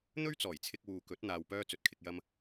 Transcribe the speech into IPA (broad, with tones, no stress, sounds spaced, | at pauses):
n̪ ɵ˥ ɥ t͡s ɔː˨˩ j t͡sʰ ɪ˧ k̚ w uː˨ k ɵ˨˥ t̚ n̪ aː˧ w p œː˥ t͡s ɵ˨ t̚ kʰ ɪ˧ k̚ j ɐ˥ m